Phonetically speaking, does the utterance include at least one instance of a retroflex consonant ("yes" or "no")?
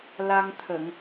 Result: no